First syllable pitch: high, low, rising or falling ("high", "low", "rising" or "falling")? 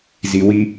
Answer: low